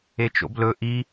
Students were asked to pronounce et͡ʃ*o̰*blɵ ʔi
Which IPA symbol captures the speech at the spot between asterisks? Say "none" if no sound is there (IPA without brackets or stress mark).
o̰